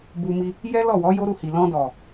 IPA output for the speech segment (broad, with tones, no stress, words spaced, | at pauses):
bu˧mi˧ | jɛ˦lɔ˦˨wɔ˨˦ jo˦ɾu˦˨hi˨ lɔ̃˧dɔ˨